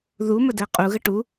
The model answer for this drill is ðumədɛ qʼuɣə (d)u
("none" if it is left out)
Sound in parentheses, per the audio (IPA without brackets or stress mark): ʈ